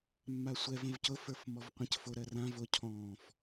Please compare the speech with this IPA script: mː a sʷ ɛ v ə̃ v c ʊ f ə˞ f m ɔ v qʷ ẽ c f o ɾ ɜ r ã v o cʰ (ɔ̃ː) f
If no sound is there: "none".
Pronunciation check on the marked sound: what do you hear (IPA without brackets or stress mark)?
ɔ̃ː